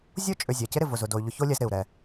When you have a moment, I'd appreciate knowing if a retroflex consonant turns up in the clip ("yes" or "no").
no